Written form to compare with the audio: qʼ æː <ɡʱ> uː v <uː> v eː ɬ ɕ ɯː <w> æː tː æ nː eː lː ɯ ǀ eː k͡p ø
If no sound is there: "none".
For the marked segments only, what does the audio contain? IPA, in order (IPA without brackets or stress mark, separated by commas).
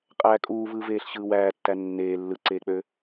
kʼ, ɯː, w